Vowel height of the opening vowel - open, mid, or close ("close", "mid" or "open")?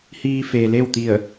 close